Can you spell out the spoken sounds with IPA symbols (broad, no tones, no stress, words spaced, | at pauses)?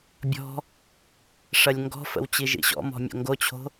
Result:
bʲɔ̤ | ʂɐlʲŋɡɔ̤fə̰w t͡ɕiʒḭɕɔ̰mɔ̤ mʲo̰ŋɡot͡ɕʰo̤